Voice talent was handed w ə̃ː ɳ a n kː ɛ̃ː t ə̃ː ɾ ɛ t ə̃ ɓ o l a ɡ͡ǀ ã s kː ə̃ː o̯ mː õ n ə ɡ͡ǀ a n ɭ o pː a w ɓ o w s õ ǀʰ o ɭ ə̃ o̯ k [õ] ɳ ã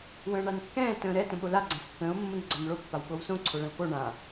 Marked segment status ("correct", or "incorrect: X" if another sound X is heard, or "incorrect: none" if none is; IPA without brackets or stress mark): incorrect: o